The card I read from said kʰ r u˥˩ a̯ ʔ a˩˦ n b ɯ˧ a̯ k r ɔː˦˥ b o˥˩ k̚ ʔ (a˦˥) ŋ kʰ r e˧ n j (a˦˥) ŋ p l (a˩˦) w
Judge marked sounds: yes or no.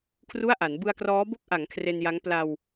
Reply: no, yes, no

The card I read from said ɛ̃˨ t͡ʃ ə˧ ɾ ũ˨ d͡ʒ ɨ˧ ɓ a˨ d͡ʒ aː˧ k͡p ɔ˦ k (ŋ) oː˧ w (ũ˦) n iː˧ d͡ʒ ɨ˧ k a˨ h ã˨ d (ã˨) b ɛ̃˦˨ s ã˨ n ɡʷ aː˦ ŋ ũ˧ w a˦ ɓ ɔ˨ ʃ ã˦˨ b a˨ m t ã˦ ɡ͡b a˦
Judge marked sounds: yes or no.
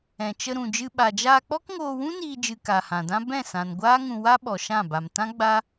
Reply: yes, yes, no

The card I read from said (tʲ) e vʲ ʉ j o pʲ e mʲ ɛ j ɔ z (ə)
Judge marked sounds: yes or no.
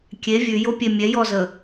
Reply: no, yes

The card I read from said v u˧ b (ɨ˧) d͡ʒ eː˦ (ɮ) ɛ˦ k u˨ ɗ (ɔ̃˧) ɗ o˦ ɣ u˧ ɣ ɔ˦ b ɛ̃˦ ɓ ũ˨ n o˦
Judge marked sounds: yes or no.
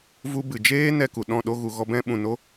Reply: no, no, no

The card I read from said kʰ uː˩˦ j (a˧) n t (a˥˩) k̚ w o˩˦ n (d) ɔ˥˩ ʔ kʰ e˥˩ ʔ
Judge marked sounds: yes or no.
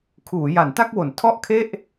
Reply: no, yes, no

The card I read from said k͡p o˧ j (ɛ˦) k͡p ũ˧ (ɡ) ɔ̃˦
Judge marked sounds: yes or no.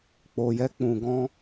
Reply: yes, yes

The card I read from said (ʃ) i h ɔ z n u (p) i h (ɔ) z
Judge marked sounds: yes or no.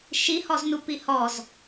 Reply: yes, yes, yes

